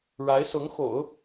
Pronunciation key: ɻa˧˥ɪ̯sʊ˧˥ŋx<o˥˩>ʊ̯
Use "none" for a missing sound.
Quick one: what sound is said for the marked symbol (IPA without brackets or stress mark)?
o̰˨˩˦